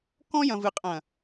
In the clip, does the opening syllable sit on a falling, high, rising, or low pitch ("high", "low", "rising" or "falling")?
high